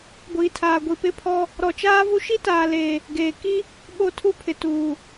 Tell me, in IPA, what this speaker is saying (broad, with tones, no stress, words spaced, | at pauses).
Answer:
ɡʷiː˨tʰaː˨ ɡʷi˨pɪ˦pʰɔ˦ | ɾɔ˨t͡ʃaː˦vu˦ ʃi˦taː˨leː˨ | ɡeː˨ ki˦ | ɓo˦˨tʰu˦pʰɪ˨ tuː˨